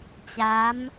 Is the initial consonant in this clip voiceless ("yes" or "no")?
yes